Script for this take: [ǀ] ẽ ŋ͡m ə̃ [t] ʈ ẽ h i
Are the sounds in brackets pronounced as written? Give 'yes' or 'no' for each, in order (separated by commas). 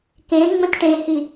no, yes